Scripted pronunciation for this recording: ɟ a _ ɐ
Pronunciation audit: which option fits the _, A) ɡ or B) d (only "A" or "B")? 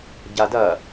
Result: B